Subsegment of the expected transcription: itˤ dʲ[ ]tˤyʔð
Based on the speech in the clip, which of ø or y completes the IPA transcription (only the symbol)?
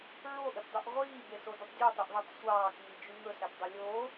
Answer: ø